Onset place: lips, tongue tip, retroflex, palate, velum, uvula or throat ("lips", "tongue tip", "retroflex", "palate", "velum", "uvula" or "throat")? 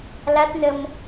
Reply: tongue tip